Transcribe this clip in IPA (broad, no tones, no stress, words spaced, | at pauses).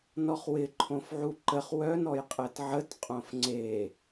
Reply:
nɔχwɪ ǃʰõfʕuǃəχ wœn ɔjqʼɛtʕət qʼõfŋ͡ǀe